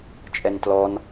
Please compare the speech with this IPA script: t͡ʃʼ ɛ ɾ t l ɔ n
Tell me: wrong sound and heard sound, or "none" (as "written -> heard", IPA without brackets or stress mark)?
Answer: ɾ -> n